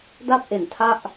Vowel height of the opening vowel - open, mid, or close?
open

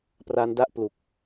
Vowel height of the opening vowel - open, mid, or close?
open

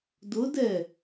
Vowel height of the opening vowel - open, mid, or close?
close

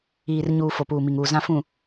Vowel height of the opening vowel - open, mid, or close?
close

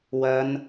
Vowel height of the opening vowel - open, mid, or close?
open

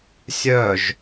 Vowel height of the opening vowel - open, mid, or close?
mid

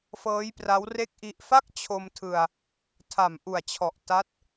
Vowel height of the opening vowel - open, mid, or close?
mid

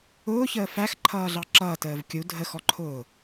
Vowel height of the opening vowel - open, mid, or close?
close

